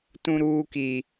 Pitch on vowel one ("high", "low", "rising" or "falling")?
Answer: high